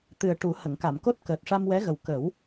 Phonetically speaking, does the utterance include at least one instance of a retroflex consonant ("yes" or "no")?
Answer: yes